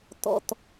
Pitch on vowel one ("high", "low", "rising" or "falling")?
low